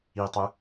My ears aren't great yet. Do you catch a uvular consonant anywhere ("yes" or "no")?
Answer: no